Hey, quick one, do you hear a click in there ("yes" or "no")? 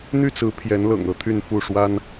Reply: no